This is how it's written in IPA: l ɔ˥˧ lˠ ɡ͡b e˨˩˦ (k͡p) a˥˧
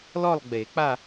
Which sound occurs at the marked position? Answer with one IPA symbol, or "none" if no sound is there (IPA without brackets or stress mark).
k͡p